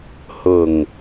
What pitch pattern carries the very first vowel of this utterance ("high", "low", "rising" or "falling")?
low